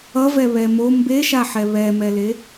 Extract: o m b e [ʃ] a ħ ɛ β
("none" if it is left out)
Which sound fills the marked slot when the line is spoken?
ʃ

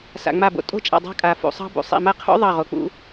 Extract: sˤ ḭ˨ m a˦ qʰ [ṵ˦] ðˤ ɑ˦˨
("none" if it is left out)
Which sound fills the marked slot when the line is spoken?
ṵ˦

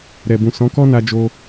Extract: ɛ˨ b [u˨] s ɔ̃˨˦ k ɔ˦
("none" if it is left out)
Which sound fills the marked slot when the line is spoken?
ũ˨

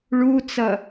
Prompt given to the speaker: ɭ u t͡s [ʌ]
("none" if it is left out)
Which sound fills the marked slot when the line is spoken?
ʌ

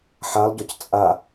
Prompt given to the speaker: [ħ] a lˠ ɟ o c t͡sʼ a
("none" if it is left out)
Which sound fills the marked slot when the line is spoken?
ħ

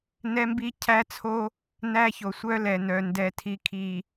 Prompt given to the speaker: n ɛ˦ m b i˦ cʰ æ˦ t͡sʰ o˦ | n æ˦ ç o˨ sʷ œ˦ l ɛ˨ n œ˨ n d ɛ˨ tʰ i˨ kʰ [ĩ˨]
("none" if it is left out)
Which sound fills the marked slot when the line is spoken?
i˨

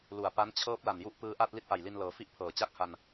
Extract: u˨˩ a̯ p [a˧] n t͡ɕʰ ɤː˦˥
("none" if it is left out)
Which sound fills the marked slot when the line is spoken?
a˦˥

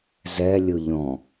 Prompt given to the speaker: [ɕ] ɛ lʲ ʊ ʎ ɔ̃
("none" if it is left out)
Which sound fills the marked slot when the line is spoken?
z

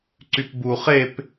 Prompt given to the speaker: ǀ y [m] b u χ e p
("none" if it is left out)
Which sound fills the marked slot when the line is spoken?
p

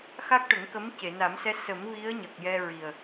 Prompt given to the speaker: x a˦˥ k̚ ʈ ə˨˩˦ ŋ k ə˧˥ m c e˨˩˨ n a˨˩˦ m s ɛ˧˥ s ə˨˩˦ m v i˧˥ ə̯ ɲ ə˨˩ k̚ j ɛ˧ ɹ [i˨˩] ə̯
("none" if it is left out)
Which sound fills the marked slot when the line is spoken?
i˨˩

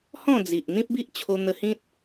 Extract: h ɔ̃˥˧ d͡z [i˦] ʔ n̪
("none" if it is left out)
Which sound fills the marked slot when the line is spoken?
i˨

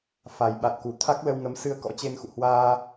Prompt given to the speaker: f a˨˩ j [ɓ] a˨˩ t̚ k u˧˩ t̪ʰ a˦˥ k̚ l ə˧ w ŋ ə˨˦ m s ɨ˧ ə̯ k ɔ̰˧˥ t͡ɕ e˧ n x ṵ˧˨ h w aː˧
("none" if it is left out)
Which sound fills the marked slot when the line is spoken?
ɓ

